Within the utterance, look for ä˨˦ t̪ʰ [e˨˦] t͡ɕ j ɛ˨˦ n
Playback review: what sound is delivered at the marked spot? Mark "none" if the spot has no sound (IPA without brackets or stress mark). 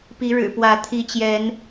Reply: i˨˦